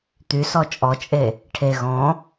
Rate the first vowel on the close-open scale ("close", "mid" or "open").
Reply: close